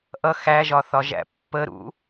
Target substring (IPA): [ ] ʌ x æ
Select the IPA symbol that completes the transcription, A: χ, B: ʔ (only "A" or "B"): B